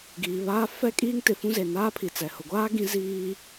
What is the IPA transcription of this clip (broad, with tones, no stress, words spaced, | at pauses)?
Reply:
ɡiː˨βaː˦ fɛ˦ kʼiː˦ŋtɪ˨fũ˦ ze˨naː˦pʰi˨t͡sɛ˨ hʊ˨ɡʷaː˦ ɡĩ˦ ziː˦